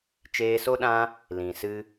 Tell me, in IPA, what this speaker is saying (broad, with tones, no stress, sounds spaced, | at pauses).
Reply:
t͡ʃ eː˧ s o˦ ɗ ã˦ | l ĩ˨ s ɨ˦